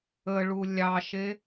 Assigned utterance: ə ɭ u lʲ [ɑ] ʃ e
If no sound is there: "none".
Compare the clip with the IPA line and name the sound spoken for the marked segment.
ɑ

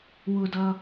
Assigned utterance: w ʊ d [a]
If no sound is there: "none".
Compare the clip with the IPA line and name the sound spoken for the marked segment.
ʌ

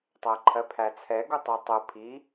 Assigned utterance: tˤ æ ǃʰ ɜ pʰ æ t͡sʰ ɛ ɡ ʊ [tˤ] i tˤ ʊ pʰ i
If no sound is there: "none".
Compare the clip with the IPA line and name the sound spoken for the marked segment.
tˤ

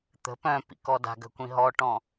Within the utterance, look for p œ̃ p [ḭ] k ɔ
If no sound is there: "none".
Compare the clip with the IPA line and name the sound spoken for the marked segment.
ḭ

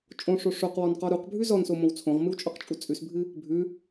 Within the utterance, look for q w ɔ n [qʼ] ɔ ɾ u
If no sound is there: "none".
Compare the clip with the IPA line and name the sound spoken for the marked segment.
q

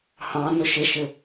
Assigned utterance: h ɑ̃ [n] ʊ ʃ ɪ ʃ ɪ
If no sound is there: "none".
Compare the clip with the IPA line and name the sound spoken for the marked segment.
n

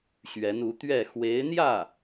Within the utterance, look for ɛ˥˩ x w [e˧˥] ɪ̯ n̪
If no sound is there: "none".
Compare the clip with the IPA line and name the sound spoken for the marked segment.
e˧˥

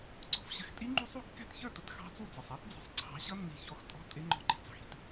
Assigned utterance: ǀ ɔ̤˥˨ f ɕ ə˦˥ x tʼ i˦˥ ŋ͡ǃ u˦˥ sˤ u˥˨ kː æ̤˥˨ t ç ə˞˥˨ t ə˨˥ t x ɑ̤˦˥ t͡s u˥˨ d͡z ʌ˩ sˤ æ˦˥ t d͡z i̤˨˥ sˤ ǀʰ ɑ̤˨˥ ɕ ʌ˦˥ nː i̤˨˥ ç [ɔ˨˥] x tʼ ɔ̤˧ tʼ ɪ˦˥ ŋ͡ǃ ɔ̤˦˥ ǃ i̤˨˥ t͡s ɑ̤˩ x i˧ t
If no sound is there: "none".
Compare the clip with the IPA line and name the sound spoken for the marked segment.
ɔ˨˥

